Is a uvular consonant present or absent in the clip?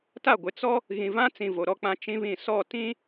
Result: absent